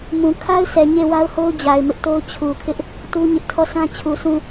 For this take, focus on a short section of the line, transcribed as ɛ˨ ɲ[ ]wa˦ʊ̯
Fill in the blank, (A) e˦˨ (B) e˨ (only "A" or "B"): A